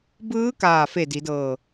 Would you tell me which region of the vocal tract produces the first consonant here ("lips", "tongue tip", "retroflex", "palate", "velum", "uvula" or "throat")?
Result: lips